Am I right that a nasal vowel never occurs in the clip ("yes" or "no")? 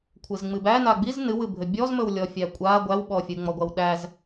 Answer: yes